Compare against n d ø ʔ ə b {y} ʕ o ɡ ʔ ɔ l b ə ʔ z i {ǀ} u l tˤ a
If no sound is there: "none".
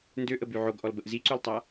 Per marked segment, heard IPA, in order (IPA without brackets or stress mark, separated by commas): y, ǀ